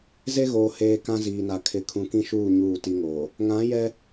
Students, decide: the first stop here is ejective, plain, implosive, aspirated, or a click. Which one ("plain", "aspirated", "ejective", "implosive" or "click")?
plain